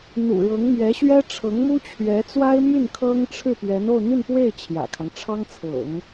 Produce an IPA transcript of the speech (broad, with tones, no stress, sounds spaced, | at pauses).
n̪ ṵ˨˩ ɻ ɤ˧˥ ŋ m ɥ ɛ˧˥ ɕ ɥ ɛ˥ ʈ͡ʂʰ ɤ˧˥ ŋ m u˥ t͡ɕʰ ɥ ɛ˧˥ t͡s w a˥ ɪ̯ m y˥˩ n kʰ ɤ˥ ŋ ʈ͡ʂʰ ɻ̩˥˩ p ɥ ɛ˧˥ n o˥˧ ʊ̯ n̪ y˥˧ n p w e˥˩ ɪ̯ t͡ɕʰ j ä̰˨˩ kʰ ɑ˦ ŋ ʈ͡ʂʰ ɑ˥ ŋ t͡sʰ ɤ̰˨˩˦ ŋ